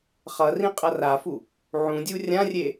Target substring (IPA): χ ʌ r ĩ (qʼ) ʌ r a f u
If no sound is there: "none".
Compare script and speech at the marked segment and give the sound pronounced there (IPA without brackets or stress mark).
qʼ